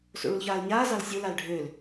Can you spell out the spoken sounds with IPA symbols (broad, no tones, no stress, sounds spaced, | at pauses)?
s o̰ ɭ u l ç aː l ɲ aː z ɑ l sʲ o l a l ɖʱ ø l